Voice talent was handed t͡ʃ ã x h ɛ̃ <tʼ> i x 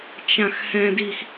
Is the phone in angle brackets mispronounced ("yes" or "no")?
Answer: yes